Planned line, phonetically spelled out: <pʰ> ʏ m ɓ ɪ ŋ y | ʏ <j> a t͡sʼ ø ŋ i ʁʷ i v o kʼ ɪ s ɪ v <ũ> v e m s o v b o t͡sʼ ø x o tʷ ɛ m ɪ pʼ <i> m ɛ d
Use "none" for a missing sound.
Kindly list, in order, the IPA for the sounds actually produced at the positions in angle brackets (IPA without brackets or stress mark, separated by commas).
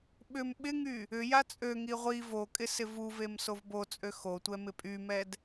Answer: ɓ, j, u, y